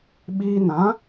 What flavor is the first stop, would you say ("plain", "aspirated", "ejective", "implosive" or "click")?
implosive